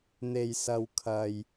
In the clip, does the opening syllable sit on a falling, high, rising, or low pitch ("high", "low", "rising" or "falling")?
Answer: low